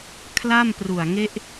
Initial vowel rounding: unrounded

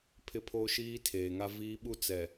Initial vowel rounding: unrounded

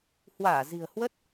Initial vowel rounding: unrounded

